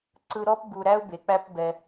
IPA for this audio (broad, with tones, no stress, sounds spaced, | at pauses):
ǀ ɯ˧ ɾ ɔ˦ p b u˨ ɾ æ˧ ʊ̯ b e˨ k͡p æ˦ p b ɛ˧